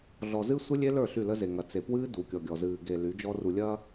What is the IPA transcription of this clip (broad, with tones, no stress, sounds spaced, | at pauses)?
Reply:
ɮ ɔ˨ z ɨ˦ sʷ ɨ˦ lʲ e˦ l ə˞˦˨ ɬ y˦˨ l ə˦ z e˨ ŋ ɐ˨ t͡s e˨ p w ɨː˦ d u˨ kʲ ɔ˨ ɡʲ ɔ˨ z ɨː˨ ɡ e˨ l y˨˦ d͡ʒ ɔ˦ r u˨ lʲ ɐː˦